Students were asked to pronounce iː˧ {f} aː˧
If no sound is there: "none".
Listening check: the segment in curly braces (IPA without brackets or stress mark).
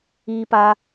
p